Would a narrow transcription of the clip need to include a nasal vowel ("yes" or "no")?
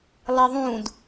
yes